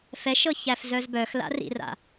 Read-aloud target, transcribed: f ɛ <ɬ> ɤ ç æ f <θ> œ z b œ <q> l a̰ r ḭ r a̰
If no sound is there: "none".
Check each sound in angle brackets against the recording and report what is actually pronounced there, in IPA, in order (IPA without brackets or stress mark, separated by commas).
ʃ, z, x